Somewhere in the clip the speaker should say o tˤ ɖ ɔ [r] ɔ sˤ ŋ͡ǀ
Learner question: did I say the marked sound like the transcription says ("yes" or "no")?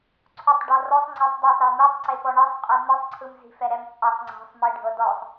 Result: yes